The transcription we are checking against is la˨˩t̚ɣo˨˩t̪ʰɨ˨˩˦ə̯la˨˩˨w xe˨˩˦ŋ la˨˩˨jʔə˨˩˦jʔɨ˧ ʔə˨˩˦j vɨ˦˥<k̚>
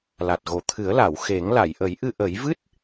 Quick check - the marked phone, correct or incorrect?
incorrect